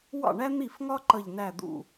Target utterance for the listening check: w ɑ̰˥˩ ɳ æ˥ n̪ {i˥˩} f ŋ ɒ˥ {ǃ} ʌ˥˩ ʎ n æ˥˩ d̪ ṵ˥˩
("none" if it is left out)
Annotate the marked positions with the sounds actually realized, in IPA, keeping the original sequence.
i˥˩, ǃ

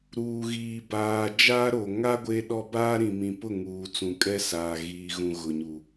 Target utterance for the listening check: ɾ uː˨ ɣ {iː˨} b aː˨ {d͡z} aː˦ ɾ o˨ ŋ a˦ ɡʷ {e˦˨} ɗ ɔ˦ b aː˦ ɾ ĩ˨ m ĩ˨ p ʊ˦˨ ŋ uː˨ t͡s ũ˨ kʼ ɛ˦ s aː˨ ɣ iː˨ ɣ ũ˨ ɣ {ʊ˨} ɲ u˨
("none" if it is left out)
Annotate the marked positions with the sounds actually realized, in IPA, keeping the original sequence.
iː˨, d͡ʒ, e˦, ʊ˨

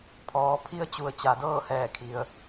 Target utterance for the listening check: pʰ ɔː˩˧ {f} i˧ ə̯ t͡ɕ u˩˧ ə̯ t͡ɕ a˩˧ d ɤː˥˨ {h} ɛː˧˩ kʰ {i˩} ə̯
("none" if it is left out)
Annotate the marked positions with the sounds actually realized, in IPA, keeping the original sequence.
pʰ, h, i˩

